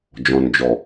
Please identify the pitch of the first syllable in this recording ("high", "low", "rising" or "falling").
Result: low